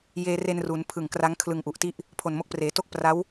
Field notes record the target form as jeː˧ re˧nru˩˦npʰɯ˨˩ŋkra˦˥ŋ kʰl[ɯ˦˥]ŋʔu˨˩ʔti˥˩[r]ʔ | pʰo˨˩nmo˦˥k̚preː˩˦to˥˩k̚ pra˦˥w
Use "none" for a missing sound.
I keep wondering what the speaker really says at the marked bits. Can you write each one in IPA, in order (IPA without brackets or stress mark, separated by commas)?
ɯ˧, none